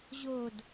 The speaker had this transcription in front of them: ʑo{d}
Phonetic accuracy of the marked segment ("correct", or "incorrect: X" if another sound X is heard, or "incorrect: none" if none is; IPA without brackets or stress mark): correct